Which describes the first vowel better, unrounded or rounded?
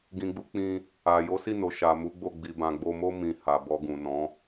unrounded